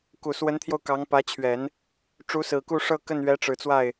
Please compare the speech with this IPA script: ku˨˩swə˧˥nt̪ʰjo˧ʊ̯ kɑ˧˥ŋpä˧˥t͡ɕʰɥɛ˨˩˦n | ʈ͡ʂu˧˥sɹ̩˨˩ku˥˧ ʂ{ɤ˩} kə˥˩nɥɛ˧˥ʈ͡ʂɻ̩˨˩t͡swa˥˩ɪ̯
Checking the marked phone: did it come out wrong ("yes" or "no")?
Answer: yes